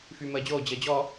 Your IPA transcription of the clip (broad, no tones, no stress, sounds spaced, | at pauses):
f yː m əː d͡ʑ oː d͡ʑ əː d͡ʑ ɔ